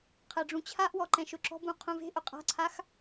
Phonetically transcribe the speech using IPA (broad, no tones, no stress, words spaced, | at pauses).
qʰɛɖ͡ʐũt͡ɕʰaʔwɔ ǃɛ̃ʃʊǁɔ̤bũ qʰũve̤ʔʊ qʼa̤ǀʰax